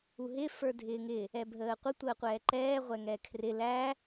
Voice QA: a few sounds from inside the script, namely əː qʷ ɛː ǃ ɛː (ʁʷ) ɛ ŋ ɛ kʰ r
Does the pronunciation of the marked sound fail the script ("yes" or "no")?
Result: no